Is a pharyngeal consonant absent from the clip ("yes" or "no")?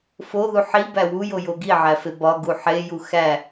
no